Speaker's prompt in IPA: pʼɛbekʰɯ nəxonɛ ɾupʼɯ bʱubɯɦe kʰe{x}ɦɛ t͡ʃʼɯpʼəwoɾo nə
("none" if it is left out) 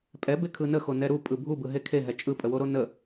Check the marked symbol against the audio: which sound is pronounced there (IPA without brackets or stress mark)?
none